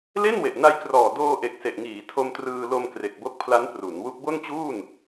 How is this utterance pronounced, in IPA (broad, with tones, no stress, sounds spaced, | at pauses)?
l e˥˩ n w e˨˩ ʔ n a˧ j k r ɔː˨˩ d oː˧ ʔ e˨˩ k̚ s e˨˩ ʔ ŋ iː˩˦ tʰ o˧ m t r ɯː˧ l o˧ m k r e˨˩ k̚ b o˦˥ k̚ pʰ l a˦˥ n p r u˩˦ n w u˦˥ k̚ b o˥˩ n t͡ɕ uː˥˩ n